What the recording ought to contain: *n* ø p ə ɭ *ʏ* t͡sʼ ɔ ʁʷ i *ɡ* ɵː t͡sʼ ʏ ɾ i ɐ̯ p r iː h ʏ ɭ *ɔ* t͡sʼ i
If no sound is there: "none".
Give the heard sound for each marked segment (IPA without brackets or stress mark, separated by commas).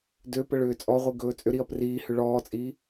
d, ʏː, ɡ, ɔː